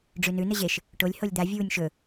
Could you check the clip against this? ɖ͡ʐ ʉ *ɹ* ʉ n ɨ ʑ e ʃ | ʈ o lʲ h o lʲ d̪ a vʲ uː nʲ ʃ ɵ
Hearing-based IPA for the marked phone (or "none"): n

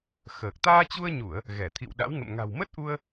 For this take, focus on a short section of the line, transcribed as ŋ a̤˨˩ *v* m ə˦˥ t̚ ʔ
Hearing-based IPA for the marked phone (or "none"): w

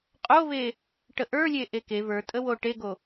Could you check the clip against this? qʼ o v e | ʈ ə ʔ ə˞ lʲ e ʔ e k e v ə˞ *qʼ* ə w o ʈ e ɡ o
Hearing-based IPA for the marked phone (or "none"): tʼ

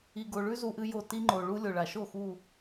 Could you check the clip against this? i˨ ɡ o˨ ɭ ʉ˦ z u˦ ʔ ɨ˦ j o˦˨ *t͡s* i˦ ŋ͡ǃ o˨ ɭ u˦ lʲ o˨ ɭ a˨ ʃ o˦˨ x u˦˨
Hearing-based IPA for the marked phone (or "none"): t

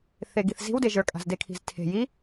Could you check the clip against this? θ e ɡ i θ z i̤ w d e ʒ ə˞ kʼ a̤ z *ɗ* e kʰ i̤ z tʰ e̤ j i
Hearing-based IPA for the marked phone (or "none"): d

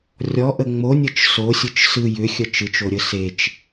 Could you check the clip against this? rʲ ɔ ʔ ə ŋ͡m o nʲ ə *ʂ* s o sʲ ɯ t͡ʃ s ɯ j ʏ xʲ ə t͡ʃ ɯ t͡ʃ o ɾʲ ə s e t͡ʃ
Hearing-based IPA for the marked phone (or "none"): t͡ʃ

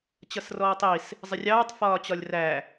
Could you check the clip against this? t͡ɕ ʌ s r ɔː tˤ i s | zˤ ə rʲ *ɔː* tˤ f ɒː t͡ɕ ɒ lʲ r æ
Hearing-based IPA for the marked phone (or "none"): ɑː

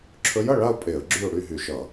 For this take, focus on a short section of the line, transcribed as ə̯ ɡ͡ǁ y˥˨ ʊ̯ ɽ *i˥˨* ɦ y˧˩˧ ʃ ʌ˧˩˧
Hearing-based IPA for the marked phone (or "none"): y˥˨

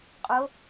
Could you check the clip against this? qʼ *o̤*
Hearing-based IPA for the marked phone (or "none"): o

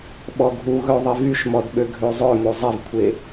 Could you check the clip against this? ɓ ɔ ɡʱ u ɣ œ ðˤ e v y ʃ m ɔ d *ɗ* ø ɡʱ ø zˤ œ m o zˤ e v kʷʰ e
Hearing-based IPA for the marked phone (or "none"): ɓ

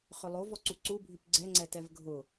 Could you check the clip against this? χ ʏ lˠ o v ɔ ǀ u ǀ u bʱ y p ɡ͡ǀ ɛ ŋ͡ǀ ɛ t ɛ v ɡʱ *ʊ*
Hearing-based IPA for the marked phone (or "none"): ʊ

